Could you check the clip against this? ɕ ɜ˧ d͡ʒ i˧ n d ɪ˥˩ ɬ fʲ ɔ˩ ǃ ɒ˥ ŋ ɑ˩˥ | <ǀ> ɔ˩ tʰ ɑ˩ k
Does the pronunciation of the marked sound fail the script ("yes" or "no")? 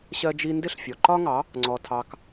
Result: yes